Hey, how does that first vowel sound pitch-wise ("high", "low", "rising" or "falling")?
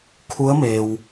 rising